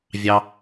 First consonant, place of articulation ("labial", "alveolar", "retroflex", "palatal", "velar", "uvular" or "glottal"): labial